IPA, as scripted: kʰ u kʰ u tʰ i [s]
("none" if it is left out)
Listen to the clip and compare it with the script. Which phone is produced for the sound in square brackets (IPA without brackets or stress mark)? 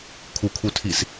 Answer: s